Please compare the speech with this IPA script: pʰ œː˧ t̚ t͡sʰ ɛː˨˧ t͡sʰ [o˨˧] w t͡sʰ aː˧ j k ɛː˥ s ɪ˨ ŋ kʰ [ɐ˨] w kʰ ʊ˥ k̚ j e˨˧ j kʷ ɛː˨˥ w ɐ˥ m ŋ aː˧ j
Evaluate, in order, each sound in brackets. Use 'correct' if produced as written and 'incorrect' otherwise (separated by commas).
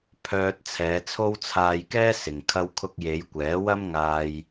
incorrect, incorrect